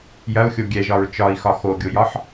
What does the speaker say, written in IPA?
jɐu̯xʲo ɡʲɛʒɒɹ t͡ʃɒi̯xɒ xoɡʲojɒħ

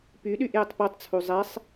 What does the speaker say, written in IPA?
pyɗyʔ jətˤpotˤt͡sʰu zˤɛsˤ

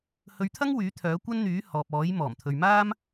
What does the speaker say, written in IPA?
hɵ˨˧ɥt̪ʰɐ˥ŋ wyː˨˥t̪ʰœː˨˥ kʷɐ˥n n̪yː˨˥ hɔː˨p̚ɔː˨˥j mɔː˨˩mt̪ʰɵ˨ɥmaː˥m

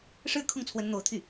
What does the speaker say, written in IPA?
ʂɻ̩˥˧kʰʊ˥˩ŋt͡sʰwə˧˥n n̪o˧˥ʊ̯t̪ʰy˥˩

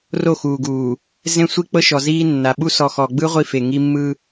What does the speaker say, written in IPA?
ro˦˨xuː˨ɡuː˨ | zẽ˦sʷi˦k͡pɤ˦ʃɔ˨ ziː˦nːa˨ ɓu˦ sɔ˨xɔ˨ɡ͡bɯ˦ ʁʷi˦fe˨ŋi˦ mːɯ˦

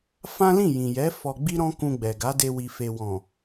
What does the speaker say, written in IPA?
fã˦lĩ˦˨jĩ˨jɛ˨˦ fɔ˧ɡ͡bi˦ɾɔ̃˦ kũ˧ɡ͡bɛ˨ɡa˨˦de˧ wi˨fe˨wɔ̃˨

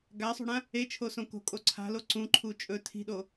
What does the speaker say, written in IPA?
ɡasˤṳɽã | et͡ʃʰosõ ko̤kʼo ǀʰa̤lo ǀũǃʰu t͡ʃʼɵ tʰi̤ɗo

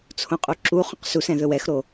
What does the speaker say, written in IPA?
t͡sʰõqʼuǁuχõq susɛ̃ ðɵwɛxɾo

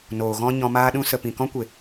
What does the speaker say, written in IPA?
noː˨ɣɔ̃˦ ɲɔ̃˧maː˦ɗũ˦ sə˨pĩ˨kɔ̃˦kʷe˨

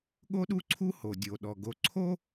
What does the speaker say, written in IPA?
ɠo˥ɗu˥ǀʰu˥ ho˩dʲo˩ɗɔ˩ ɡo˩ǀʰo˥

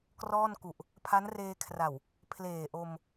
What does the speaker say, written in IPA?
krɔː˥˩nku˨˩ʔ | pʰa˦˥nreː˧kʰra˨˩w | pʰleː˨˩ʔo˧m

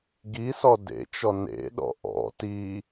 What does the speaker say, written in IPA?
ɡisɔ dḛt͡ʃɔ nḛɗɔ̰ ʔɔ̰ ti

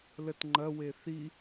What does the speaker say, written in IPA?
lətŋ͡ǃɐwe θi

